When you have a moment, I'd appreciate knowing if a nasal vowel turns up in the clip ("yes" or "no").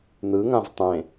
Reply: yes